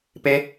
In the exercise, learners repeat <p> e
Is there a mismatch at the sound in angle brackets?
no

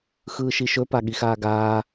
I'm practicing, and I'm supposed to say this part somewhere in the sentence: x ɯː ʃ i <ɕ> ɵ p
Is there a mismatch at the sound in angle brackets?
yes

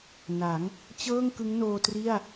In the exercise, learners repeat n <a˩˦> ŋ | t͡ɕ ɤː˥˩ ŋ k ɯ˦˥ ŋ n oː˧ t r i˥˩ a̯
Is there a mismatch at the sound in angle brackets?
no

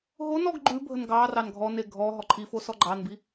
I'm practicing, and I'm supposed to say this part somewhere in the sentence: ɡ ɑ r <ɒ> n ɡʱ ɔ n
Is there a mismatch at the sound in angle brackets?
yes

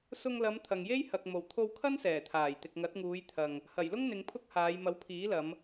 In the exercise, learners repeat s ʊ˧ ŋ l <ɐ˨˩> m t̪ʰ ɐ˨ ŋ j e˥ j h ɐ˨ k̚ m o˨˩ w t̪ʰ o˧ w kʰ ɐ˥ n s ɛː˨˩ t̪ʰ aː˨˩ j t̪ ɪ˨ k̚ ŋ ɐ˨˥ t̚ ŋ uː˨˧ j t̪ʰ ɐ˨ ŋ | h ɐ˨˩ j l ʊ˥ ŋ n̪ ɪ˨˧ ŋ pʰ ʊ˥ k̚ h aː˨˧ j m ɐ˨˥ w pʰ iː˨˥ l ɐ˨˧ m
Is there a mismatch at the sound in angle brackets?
yes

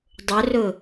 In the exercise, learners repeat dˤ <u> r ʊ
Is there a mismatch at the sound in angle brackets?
yes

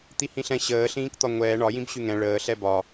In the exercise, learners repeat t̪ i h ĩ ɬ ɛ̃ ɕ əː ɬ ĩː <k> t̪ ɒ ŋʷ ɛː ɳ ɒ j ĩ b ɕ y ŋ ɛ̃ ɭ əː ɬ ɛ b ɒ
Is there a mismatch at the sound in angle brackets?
no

